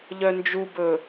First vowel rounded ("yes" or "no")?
yes